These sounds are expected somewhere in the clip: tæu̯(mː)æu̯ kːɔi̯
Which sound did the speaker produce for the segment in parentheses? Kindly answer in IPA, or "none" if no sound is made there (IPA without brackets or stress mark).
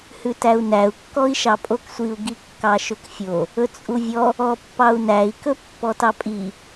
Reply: n